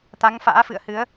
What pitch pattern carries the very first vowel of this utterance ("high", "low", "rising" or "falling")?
rising